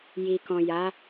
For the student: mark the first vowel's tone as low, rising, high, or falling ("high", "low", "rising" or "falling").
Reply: low